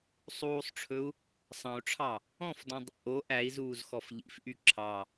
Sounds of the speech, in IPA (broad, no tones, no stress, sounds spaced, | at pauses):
sˤ uː sˤ ʈ͡ʂʰ ɵ u̯ | sˤ ɑ̃ u̯ ʈ͡ʂʰ ɑ | ɔ̃ f d ɔ̃ dˤ ḛ ʔ o ʔ æ i̯ z uː z x ɔ f ʎ ḭ f ʔ y ǁʰ ɑ